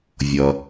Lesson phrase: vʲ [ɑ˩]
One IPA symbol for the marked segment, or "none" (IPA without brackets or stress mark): ʌ˩